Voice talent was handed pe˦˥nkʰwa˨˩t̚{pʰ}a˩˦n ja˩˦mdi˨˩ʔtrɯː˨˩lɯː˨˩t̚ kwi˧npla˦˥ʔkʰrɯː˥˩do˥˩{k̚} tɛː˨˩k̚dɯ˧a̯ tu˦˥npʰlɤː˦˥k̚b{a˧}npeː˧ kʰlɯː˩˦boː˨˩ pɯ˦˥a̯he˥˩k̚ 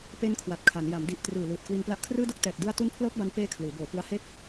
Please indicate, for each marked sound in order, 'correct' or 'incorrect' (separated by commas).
incorrect, correct, correct